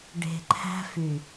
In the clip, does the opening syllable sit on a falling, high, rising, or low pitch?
low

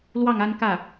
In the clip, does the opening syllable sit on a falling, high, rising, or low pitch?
falling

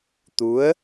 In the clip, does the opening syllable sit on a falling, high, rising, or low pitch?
rising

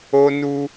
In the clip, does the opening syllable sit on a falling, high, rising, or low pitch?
high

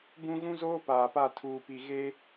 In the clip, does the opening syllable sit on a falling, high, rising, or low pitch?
high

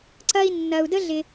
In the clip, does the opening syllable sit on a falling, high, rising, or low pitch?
high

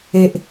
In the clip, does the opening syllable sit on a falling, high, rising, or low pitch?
low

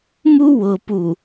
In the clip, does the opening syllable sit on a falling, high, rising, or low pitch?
high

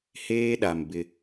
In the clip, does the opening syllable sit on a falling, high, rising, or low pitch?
high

